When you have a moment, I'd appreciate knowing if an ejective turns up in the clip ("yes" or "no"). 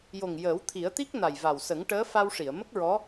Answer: no